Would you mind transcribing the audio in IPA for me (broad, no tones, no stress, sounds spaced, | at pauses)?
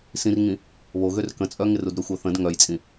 s ĩ r ŋ ĩ | β o ɣ ø r k ə̃ t͡sʼ œ ŋ ɪ r u d ɾ ʏ xʷ œ θ ə̃ d ŋ œ j t͡sʼ ĩ